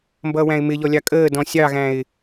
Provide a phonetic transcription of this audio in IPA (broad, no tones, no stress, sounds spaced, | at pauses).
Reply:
m b ʌː w æ̃ ɪ̯ m ɪ ʎ ɔ lʲ ɑ kʼ əː d ɔ̃ sʲ ɑ ɣ æ̃ ɪ̯